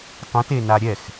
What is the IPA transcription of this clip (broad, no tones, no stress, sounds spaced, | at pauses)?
tˤ ũ t e n a ɾʲ ɛ x